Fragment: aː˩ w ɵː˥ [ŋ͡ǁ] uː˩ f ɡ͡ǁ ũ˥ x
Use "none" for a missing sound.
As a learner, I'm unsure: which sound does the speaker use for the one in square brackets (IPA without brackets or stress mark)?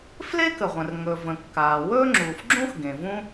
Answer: ŋ͡ǁ